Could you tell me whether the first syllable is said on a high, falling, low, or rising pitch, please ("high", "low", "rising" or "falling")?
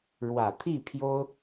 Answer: low